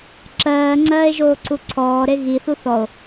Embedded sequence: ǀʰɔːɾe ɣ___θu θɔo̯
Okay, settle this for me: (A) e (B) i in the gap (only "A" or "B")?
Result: B